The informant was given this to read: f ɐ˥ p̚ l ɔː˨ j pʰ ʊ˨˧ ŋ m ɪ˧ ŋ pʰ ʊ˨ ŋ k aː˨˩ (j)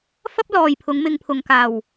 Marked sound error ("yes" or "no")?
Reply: yes